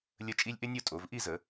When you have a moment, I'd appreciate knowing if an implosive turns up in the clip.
no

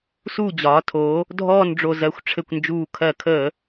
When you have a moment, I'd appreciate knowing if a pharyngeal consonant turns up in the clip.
no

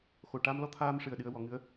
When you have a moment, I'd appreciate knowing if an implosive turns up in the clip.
yes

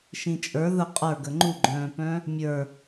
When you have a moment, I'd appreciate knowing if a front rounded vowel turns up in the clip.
yes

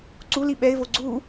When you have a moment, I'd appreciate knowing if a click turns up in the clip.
yes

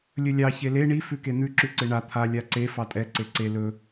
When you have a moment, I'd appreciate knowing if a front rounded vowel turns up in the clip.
no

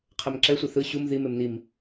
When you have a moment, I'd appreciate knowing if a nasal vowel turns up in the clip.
no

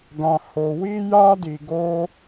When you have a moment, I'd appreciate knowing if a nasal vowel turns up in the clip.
yes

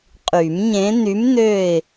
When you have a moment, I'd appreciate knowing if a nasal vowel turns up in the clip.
yes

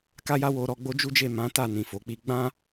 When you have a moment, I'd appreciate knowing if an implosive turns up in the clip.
no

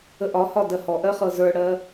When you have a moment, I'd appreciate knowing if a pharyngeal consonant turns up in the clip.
no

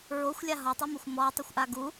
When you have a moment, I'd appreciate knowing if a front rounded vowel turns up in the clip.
no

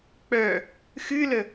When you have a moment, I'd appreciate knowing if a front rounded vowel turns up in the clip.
yes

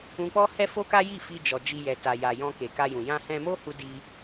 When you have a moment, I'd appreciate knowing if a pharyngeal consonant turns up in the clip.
no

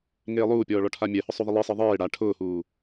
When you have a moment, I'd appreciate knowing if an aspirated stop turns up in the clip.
yes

